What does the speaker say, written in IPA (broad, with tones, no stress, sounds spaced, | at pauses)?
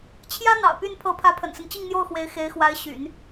t͡ɕʰ j ä˥ n̪ ɑ̰˨˩ ʊ̯ p y˥˩ n pʰ ɤ˧˥ pʰ ä˧˥ pʰ ə̰˨˩ n s ə˦ n t͡ɕ i˥˧ ŋ n̪ j o˥˩ ʊ̯ x w e˧˥ ɪ̯ x e˧˥ ɪ̯ x w a˧˥ ɪ̯ ɕ y̰˨˩˦ n